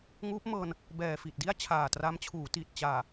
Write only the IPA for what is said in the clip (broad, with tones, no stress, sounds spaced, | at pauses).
ŋ uː˦˥ p̚ m ɤː˧ n | b ɛː˨˩ f i˨˩ t̚ d i˥˩ a̯ t͡ɕʰ aː˨˩ t r a˦˥ m t͡ɕʰ uː˩˦ t i˨˩ t̚ t͡ɕ aː˨˩